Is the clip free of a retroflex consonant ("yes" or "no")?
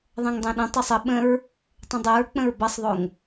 yes